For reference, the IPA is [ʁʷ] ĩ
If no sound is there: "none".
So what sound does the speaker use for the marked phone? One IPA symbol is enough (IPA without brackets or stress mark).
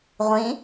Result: ʁʷ